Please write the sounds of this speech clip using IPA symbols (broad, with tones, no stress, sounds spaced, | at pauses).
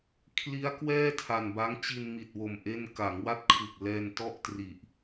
kʰ l i˦˥ a̯ k w ɛː˥˩ tʰ a˨˩ n b a˦˥ ŋ t͡ɕ i˧ n m i˨˩ t̚ w o˨˩ m ʔ e˥˩ n k a˩˦ ŋ w a˦˥ t̚ kʰ ɯ˨˩ k̚ l ɛː˧ n t ɔ˥˩ ʔ t r i˨˩ ʔ